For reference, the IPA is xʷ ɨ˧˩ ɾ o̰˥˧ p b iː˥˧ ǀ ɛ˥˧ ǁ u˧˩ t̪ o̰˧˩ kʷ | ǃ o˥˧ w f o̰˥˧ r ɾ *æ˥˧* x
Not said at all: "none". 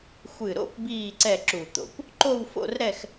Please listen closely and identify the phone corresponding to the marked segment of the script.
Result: ɛ˥˧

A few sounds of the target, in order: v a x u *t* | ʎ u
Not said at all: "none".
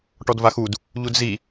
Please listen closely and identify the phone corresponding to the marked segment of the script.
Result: d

